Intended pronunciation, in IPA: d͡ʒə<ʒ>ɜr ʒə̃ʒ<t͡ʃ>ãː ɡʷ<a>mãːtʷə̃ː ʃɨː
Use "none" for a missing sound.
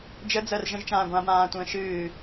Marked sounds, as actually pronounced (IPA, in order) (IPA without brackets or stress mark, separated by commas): d͡z, t͡ʃ, ã